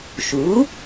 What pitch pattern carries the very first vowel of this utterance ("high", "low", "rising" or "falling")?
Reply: rising